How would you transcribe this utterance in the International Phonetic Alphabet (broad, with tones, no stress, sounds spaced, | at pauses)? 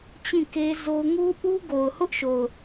t͡ɕ ĩ˦˨ k e˦ z o˦ ʊ̯ ŋ u˦ ʔ u˦ ɡ o˨ ʊ̯ h ʊ˦ ʔ ʃ o˨ ʊ̯